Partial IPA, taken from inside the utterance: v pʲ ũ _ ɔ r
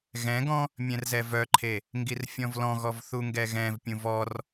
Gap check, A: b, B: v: B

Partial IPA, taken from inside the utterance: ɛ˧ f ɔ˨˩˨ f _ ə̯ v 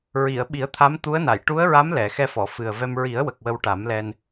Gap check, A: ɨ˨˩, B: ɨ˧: A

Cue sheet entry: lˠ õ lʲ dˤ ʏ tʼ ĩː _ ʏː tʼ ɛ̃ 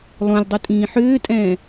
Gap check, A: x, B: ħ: B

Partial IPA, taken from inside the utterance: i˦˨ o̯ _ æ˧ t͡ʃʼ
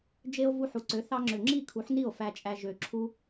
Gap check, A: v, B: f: B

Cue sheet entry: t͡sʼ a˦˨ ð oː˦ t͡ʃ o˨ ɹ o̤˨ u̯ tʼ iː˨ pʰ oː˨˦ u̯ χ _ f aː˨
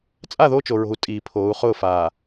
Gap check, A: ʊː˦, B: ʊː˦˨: B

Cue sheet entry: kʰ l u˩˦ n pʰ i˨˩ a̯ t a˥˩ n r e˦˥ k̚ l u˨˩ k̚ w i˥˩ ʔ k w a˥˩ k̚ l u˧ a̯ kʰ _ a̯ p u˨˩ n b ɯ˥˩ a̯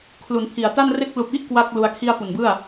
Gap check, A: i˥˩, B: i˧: A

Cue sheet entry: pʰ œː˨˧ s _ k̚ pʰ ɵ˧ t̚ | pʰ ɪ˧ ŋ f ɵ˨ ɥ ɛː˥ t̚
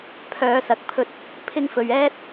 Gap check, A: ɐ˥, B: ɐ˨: B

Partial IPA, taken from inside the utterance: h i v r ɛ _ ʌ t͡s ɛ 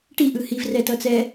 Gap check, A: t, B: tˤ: A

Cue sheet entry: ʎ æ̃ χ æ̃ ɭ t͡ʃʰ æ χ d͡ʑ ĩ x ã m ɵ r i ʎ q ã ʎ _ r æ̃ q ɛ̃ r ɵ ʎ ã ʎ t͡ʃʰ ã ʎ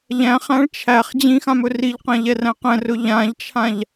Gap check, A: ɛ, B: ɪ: A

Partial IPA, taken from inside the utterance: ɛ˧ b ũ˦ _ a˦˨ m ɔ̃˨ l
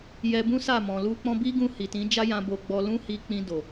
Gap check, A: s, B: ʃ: A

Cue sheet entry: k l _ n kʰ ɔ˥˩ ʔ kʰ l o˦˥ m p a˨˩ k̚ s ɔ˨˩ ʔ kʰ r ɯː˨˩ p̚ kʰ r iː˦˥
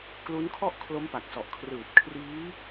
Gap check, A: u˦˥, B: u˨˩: A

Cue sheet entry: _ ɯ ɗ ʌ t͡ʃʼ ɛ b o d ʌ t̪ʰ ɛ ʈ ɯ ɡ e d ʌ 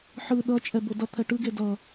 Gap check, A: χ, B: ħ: B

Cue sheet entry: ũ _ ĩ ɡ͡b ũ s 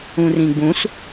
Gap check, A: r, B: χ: A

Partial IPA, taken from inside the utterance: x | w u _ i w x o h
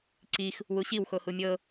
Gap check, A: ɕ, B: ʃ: A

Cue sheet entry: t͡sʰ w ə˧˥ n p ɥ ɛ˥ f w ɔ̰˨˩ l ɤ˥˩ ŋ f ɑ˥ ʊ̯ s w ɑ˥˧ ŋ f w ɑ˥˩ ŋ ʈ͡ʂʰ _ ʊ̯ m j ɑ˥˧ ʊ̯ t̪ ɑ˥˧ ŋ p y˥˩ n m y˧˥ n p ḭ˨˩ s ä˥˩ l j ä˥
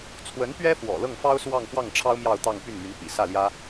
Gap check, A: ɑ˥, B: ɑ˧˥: A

